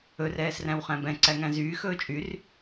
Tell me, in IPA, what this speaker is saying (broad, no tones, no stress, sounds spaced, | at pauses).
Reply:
ɵ r ɛː s r æ̃ w χ æ̃ b ɛ̃ ǀ æ ŋ æ̃ z yː x ɵː t͡ʃʼ y r